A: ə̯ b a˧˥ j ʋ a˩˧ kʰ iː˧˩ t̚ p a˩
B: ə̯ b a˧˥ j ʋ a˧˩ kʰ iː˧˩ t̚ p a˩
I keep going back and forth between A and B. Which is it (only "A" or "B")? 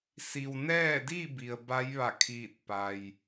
B